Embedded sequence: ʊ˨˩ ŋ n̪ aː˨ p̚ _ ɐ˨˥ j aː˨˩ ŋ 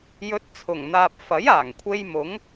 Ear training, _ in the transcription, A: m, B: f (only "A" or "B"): B